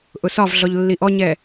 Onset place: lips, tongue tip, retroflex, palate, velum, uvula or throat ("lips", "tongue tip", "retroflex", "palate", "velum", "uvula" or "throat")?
throat